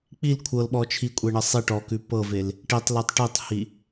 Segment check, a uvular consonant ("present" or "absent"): absent